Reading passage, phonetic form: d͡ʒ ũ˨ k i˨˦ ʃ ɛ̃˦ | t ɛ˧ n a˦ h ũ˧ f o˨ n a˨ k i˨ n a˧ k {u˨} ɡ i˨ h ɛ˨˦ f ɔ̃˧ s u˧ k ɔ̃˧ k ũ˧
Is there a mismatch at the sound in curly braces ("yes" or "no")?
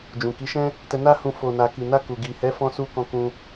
no